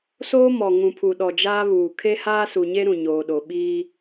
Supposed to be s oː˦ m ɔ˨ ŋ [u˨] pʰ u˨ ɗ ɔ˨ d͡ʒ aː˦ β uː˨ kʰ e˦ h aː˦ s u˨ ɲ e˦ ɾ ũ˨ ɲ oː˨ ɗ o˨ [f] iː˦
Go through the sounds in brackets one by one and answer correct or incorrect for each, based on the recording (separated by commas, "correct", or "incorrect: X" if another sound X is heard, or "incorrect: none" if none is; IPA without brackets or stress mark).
incorrect: ũ˨, incorrect: ɓ